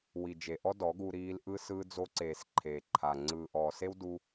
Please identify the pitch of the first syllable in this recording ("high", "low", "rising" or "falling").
low